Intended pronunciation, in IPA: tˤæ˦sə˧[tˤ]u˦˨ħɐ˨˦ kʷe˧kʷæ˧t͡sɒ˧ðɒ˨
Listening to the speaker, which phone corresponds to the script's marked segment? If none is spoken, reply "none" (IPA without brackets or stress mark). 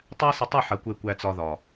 tˤ